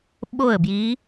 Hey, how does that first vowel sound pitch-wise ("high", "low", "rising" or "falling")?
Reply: falling